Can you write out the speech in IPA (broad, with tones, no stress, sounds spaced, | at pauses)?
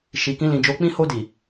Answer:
ʃ i˨ k ĩ˧ l ĩ˨ d͡ʒ o˨˦ k͡p ĩ˦ h o˧ d i˨